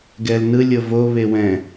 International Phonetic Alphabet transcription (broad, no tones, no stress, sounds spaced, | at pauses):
ɡ ɛ l n ɯ lʲ ɤ v o β e w ɛ̃